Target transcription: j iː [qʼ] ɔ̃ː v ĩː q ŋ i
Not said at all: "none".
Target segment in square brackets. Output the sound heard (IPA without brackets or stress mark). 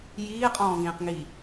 qʼ